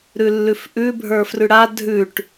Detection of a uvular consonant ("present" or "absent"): absent